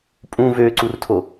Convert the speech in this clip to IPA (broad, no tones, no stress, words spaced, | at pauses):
pʼũ vøǀurtʰo